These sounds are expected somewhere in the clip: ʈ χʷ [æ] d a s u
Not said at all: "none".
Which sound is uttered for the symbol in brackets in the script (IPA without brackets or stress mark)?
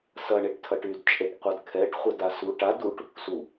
ɐ